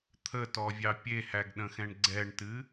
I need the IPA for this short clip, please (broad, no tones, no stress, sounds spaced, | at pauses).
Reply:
t̪ʰ ə t ɔ vʲ ɑ pʲ e h æ ɡ ɗ ə̃ x ɛ̃ ɳ ɡ͡ǀ ɛ ɳ t ɨ